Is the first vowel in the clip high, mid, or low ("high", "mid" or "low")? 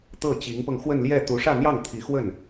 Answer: mid